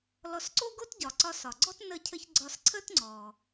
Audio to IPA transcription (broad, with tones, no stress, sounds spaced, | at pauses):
l ɔ˧ s ǀ o˥ ɡ o˥ t ɟ ɒ˩ ǀ ɒ˧ s ɒ˩ ɡ͡ǀ ɔ˥ t n ə˧ cʰ ə˧ ç ɡ͡ǀ ɒ˧ s ǀʰ ə˥ t ŋ͡ǀ ɔ˩